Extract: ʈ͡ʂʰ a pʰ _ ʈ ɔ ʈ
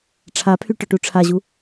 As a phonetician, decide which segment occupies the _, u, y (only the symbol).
y